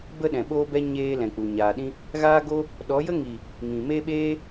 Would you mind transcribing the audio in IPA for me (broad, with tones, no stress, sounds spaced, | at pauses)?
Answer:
b ə˦ ɗ ɛ̃˨ ɓ oː˦ b ɛ˦ ɲ eː˧ l ɛ̃˨ k͡p u˨ ɲ aː˨ ɗ ĩ˦ | ɣ aː˦ ɡ o˦ | ɗ ɔ˨˦ j ə˦ ŋ i˨ | ŋ ĩ˨ m e˦ ɓ eː˦